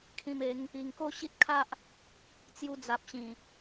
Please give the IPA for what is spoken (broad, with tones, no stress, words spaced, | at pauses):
kʰĩ˧me˨˦ŋ | i˨˩ŋko˥˧ɕi˦t̚kʰa˦ʔ | t͡sju˧d͡za˨p̚ɕĩ˨˩